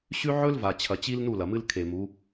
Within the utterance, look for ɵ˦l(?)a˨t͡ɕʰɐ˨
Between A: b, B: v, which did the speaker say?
B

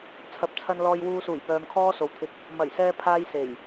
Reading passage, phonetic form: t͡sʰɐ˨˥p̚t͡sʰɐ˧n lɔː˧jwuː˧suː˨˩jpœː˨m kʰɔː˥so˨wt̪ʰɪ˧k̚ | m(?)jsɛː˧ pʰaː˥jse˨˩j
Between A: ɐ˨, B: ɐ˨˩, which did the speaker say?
B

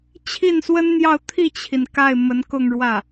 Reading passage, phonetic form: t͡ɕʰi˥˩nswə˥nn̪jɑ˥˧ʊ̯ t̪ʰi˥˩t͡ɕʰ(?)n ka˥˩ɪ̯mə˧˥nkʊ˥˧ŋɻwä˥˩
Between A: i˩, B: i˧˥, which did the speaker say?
A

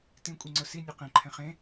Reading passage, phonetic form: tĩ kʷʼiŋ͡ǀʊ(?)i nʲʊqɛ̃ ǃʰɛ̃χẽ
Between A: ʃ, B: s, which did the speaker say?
B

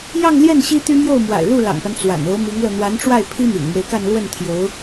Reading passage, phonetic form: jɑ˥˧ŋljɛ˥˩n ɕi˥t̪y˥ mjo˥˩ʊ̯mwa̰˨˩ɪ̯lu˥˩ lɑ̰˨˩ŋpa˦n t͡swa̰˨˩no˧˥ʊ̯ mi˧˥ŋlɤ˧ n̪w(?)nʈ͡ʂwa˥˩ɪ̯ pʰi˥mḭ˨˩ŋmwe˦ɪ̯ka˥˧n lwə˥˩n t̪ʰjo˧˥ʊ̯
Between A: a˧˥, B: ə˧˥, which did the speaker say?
A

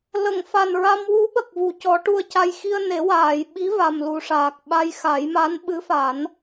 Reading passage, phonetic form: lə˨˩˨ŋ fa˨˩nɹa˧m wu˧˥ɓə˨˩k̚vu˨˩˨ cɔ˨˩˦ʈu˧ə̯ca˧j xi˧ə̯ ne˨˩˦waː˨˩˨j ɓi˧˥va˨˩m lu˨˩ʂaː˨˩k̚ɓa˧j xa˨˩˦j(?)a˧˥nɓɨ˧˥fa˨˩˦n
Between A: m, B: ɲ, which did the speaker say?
A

